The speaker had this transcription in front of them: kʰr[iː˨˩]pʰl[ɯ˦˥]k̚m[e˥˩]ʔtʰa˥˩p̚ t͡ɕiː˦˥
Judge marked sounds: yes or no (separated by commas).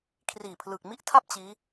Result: yes, no, no